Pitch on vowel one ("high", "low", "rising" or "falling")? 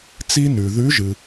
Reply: high